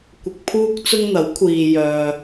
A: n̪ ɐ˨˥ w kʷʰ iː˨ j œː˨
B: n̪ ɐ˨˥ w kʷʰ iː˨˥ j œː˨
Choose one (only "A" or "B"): A